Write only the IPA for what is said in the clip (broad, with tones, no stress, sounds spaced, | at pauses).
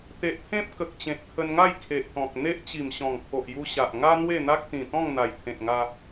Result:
t̪ e˨ ʔ pʰ ẽ˦ p̚ k ə˨ k̚ t͡ɕ ẽ˨ t̚ t̪ʰ ə˧ n ŋ a˥˧ j kʰ e˨ ʔ t̪ ɔ̃˨ k̚ n̪ e˦ ʔ t͡ɕ i˨˩ m ɕ ɔ̃˨˩ ŋ kʰ o˨ ʔ j u˧ ɕ a˨ ʔ ŋ a˦ n̪ w e˥˧ n̪ a˦ k̚ t̪ ĩ˨˩ t̪ ɔ̃˥˧ ŋ n̪ a˨˩ j t̪ʰ ẽ˨ t̚ ŋ a˧